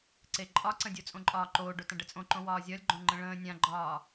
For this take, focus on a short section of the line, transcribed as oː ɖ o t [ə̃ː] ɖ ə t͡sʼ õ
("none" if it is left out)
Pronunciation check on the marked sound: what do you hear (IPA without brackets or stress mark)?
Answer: ə̃